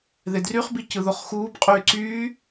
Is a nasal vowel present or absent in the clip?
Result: absent